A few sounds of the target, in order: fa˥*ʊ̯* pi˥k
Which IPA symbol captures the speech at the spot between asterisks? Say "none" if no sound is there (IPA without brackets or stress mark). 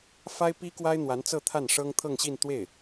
ɪ̯